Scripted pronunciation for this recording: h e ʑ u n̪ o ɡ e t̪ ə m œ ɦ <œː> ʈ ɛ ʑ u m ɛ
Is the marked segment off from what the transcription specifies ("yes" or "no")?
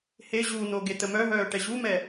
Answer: no